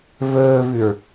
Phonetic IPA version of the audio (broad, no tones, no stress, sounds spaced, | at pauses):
v ɵː v ʉ ɹ